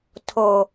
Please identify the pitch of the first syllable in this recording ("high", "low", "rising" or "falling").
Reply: high